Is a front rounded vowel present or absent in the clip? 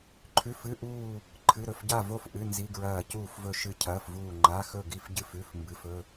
absent